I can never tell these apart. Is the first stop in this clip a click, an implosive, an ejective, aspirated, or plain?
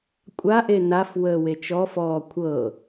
ejective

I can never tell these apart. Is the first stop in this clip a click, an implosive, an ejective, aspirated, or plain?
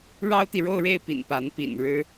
plain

